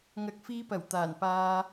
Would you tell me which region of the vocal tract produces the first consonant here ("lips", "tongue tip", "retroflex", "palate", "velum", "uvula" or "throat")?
velum